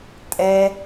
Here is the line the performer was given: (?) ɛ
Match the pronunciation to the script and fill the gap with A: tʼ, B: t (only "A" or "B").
A